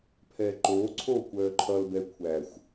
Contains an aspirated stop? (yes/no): yes